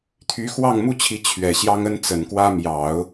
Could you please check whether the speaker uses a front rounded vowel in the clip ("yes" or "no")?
yes